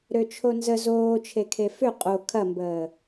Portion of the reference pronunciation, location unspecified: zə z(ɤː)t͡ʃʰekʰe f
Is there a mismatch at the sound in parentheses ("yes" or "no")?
yes